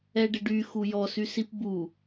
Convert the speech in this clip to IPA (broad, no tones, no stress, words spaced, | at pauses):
ɛɖɪɖy xujɔsysip bu